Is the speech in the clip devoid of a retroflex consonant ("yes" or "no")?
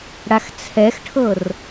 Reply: no